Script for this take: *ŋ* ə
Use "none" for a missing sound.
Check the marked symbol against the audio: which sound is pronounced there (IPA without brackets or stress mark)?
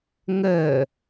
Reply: ŋ